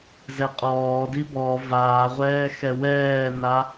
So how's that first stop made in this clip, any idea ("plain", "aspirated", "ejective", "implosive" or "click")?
ejective